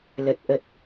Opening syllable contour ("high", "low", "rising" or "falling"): low